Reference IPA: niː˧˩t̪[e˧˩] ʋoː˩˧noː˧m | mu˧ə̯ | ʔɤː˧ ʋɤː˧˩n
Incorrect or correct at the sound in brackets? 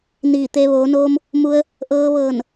incorrect: e˧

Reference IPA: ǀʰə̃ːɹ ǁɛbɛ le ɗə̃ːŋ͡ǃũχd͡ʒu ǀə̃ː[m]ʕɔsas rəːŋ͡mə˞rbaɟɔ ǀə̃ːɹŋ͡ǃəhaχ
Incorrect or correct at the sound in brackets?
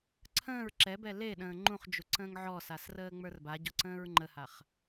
incorrect: ŋ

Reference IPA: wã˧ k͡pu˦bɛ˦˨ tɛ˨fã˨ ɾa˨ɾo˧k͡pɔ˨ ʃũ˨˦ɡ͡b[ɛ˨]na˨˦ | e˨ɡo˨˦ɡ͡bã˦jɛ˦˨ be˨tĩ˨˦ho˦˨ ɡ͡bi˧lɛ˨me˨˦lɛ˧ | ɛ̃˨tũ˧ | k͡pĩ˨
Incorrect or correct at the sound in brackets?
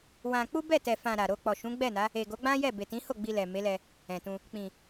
incorrect: ɛ˦˨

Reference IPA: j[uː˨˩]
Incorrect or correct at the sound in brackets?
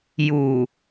correct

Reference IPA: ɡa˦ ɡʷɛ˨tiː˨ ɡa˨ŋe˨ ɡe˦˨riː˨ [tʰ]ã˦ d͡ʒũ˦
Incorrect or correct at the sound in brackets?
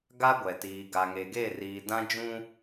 incorrect: d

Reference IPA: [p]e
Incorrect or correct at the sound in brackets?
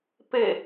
correct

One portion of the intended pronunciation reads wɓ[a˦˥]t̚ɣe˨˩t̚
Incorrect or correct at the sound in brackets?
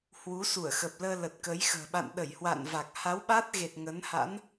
correct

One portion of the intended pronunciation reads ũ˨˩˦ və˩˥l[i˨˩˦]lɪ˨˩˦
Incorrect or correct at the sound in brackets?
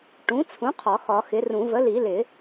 correct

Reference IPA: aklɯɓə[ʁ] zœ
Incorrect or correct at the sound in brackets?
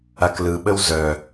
incorrect: w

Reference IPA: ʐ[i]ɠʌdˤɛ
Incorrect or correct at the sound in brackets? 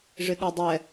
incorrect: ɪ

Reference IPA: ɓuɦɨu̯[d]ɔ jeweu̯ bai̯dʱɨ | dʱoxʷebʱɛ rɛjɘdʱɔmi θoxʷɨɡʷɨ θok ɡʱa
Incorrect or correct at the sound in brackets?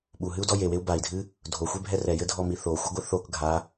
correct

